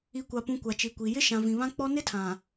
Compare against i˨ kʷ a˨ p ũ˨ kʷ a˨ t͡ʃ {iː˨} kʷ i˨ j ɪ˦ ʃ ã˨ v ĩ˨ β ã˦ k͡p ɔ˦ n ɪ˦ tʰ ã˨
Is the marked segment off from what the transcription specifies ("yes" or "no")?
yes